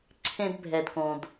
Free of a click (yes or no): no